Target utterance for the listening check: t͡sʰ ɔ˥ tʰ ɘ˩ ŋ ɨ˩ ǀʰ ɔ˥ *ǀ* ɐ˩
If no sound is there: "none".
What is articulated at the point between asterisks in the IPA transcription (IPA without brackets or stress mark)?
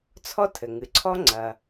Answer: ŋ͡ǀ